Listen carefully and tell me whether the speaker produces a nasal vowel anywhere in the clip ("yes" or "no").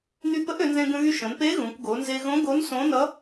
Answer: yes